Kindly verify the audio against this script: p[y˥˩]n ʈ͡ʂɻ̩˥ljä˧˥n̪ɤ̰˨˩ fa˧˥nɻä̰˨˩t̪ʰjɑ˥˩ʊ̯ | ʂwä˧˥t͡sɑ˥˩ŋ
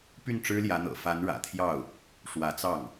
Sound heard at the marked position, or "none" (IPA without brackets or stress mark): y˥˩